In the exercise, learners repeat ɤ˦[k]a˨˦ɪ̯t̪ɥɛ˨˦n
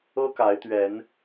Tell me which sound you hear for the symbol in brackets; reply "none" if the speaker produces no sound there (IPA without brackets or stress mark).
k